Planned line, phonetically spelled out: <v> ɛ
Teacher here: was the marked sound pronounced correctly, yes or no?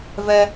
yes